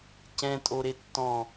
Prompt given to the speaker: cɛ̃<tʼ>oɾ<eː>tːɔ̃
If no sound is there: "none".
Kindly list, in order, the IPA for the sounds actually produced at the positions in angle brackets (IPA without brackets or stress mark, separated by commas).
tʼ, e